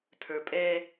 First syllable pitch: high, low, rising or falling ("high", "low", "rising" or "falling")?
low